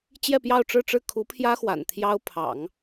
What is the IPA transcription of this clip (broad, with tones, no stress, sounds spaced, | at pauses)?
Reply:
t͡ɕ j ɛ˥˧ p j ɑ˥˧ ʊ̯ ʈ͡ʂ ɻ̩˥˧ ʈ͡ʂ ɻ̩˥˩ kʰ u˧˥ pʰ j ä˥ x w a̰˨˩ n t̪ʰ j ɑ˥ ʊ̯ pʰ ɑ̰˨˩˦ ŋ